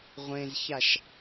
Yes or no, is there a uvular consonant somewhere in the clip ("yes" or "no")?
yes